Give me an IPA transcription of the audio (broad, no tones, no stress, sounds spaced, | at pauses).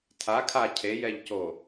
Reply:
tʰ a kʰ a cʰ e j ɛ ʎ c o